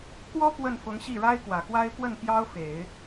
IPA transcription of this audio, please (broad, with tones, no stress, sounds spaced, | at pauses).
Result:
k w ɔ˥ p w ə˥˩ n f ʊ˧˥ ŋ ɕ i˥˩ ɻ a˥ ɪ̯ k w ä˨˩ k w a˥ ɪ̯ p w ə˥˩ n p j ɑ˥ ʊ̯ f e˨˩˦ ɪ̯